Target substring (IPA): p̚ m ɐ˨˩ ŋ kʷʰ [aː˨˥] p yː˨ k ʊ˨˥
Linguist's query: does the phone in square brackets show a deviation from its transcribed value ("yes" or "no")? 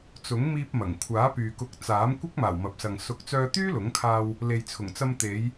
no